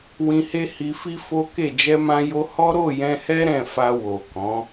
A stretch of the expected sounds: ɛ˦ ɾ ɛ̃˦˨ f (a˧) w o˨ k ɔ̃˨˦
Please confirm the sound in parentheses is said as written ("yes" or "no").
yes